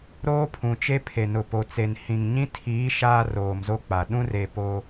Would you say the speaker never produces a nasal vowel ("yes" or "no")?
no